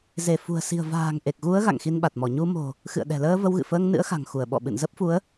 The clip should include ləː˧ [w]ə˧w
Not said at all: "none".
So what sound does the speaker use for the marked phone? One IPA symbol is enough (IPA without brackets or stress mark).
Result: v